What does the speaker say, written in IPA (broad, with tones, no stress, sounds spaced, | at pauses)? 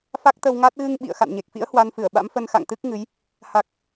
f a˦˥ k̚ t̪ ə˧ w ŋ a˦˥ t̚ ɣ ɨ˧ ŋ ɓ ḭ˧˨ ə̯ x a̰˧˨ n ɲ e˨˩ k̚ f ḭ˧˥ ə̯ h w a˧ n f ɨ˧˩ ə̯ ɓ a̰˧˥ m f ə˧ n x a̰˧˨ ŋ t̪ ɨ˦˥ k̚ ŋ ɨ˨˦ j | h a˨˩ k̚